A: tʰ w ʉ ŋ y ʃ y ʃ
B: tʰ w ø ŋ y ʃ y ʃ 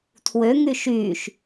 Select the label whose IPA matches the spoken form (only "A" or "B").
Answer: B